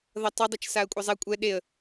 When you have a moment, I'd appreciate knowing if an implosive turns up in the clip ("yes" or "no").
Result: yes